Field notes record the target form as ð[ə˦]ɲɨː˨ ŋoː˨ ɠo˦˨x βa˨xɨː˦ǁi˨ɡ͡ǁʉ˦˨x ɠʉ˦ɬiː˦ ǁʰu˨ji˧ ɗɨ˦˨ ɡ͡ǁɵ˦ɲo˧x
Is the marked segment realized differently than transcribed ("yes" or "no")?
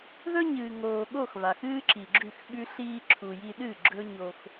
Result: yes